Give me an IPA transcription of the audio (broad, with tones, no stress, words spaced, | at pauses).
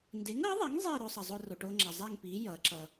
nde˨˥ŋʌː˨˥ðˤe˨˥ŋ zˤiː˥˧ɾo˧sˤʌ˩ zˤo˧ro˩ʈoː˧ŋ͡ǁa˩ zˤɛ˥˧ŋpiː˨˥ jʌː˨˥ǁʌ˧